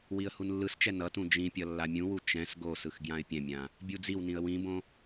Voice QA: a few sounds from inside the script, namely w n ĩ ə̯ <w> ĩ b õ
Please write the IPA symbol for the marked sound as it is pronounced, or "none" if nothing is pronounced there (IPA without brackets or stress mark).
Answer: w